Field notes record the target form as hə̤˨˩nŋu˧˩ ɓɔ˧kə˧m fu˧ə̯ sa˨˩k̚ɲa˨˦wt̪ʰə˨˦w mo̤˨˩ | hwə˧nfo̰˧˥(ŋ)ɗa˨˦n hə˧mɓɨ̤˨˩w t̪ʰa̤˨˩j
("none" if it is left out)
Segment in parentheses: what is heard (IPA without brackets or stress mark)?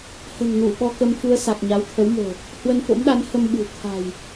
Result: m